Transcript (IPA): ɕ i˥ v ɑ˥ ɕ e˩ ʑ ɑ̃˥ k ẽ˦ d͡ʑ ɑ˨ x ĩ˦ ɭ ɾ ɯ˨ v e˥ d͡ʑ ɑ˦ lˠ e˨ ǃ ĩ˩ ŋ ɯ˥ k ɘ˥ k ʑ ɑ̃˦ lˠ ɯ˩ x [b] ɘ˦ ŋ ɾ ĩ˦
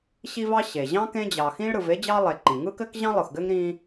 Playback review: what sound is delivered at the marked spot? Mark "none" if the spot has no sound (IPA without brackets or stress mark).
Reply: ɡ